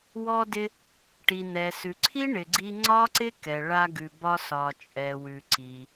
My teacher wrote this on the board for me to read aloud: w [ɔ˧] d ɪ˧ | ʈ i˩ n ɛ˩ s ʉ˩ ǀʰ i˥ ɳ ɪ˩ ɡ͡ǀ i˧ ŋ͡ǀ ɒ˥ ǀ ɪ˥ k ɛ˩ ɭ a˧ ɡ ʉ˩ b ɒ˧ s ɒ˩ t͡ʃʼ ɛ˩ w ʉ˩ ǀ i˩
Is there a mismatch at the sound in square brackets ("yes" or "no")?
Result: no